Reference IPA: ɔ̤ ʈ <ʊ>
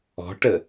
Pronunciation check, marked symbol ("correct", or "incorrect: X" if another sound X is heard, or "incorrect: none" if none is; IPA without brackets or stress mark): incorrect: ə